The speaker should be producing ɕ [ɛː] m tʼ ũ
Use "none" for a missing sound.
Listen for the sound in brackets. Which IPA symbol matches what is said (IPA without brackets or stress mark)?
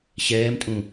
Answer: ɛː